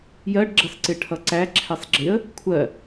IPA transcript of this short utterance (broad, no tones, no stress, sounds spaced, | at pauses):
j ɜ ɖ ɡ͡ǁ ʌ s ǀ ɪ ʈʰ ʌ ǀ æ ǁʰ ɛ sˤ ɡ͡ǁ ɪ ə̯ | kʷʰ ɜ